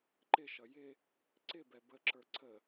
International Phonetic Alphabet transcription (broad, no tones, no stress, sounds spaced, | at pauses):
ǃ ɪ ʃ ʌ j ɪ | ǀ ɪ b ɛ b ə ǁ ə˞ ǀʰ ə